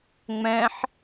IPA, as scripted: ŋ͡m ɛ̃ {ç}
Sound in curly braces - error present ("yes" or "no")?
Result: yes